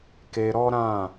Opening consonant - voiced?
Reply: no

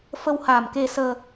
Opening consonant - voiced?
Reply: no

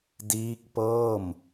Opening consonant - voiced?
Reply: yes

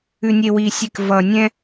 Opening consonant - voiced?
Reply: yes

